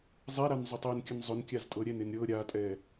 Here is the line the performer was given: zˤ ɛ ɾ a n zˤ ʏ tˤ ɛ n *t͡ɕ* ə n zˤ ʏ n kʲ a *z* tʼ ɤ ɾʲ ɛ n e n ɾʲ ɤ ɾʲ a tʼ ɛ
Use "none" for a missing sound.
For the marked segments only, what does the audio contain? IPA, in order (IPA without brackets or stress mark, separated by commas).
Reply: kʲ, z